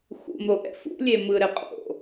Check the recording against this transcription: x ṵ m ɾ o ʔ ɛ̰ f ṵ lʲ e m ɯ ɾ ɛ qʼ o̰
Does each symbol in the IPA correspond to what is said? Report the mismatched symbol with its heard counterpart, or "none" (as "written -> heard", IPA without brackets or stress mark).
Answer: none